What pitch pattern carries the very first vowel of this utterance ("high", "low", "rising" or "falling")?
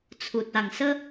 low